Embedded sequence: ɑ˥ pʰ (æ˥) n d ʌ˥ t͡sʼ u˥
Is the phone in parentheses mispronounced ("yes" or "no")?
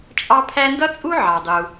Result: no